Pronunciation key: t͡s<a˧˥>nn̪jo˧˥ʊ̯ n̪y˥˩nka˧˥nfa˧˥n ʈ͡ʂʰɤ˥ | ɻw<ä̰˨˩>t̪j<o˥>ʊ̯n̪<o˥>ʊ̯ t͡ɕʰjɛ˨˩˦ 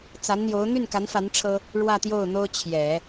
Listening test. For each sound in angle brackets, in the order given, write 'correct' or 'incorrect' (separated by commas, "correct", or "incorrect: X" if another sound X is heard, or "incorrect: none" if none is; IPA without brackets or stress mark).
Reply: correct, incorrect: ä˥˧, incorrect: o˥˩, correct